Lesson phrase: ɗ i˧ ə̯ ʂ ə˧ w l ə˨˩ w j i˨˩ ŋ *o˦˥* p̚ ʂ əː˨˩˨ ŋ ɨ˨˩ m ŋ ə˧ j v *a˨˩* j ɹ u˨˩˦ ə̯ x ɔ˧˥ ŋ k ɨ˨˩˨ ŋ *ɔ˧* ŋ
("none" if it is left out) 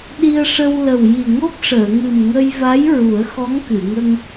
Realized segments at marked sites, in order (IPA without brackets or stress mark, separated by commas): o˦˥, a˧˥, ə˧